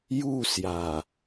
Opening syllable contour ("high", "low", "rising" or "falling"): falling